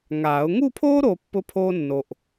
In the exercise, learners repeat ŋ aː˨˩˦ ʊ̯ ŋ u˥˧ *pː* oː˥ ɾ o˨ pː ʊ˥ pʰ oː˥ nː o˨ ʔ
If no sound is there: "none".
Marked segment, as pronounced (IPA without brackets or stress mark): pʰ